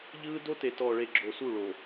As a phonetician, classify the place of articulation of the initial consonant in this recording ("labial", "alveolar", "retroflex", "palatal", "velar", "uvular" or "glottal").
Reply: palatal